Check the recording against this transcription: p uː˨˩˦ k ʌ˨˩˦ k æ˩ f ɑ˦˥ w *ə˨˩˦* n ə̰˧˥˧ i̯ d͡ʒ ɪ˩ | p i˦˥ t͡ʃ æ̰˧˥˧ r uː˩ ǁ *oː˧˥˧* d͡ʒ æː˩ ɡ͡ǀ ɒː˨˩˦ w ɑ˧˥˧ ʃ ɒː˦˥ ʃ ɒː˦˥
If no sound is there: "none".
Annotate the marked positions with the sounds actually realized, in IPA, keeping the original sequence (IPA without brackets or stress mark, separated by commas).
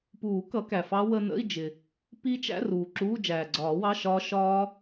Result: ə˧, uː˧˥˧